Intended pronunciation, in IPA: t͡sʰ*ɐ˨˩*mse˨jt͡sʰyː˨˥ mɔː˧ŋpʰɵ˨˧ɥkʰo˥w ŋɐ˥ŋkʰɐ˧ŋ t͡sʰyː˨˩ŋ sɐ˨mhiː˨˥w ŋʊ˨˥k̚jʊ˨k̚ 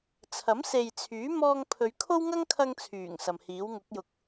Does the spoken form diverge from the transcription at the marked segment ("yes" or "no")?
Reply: yes